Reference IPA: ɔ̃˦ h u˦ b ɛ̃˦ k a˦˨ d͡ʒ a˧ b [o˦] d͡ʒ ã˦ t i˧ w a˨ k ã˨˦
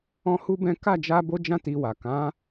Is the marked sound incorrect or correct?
correct